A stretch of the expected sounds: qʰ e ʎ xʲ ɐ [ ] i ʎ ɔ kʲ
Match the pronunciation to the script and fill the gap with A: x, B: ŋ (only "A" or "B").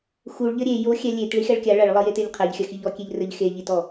A